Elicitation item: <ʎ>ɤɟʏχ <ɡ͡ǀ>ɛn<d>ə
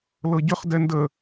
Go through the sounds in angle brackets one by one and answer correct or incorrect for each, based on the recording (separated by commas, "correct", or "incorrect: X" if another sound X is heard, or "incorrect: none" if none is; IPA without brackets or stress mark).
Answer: incorrect: l, incorrect: d, correct